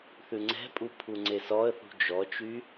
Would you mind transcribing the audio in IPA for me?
θʉŋ͡ǀɛ̤pʼu pʰuŋ͡ǀesɔə̯θṳ d͡ʒɔt͡ʃy

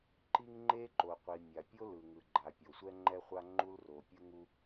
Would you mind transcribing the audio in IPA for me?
ǃi˥ŋ ŋ͡ǃe˥ ǃo˩qʷi˩ mʲa˩pʲo˥ lɯ˩ŋɯ˩ɡ͡ǃa˩ pʲo˩sʷɛ˥ŋ͡ǃɛ˥χʷa˥ ŋ͡ǃu˥lro˩pʲɯ˥ŋu˥

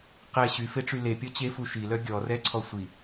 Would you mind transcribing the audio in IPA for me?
qɛ ɕyfeʈ͡ʂy lepʲɔ t͡ɕefu ʃilœ ɡʲɔrɛǀʰɔ sʷi

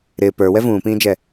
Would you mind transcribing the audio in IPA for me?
ɾɪː pə˞wɛ vũːpĩːd͡ʒɛ

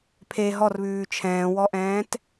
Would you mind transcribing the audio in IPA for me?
pʰe ɦɔrβʉː t͡ʃʰɛ̃ːwɔʔɛ̃ːt

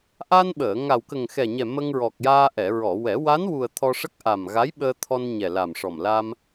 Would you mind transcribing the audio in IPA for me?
ʔa˧nɓəː˨˩˨ ŋa˨˩wkə˨˩ŋxɛ˨˩ɲɛ˨˩ mə˧ŋɹɔ˨˩k̚jaː˧ ʔɛ˨˩˨ɹɔ˨˩˨wɛ˨˩˦ wa˧˥nwu˨˩ə̯ t̪ʰɔ˧ʂə˦˥k̚ʔa˨˩m ɣa˧˥jɓəː˧t̪ʰɔ˧n ɲɛ˨˩la˨˩mʂɔ˨˩m la˧m

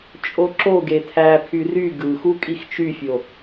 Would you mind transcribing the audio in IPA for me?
t͡ʃʼoǁoɡe tʰæpʰy ry ɡɯxu kʼixt͡ʃyfʲo

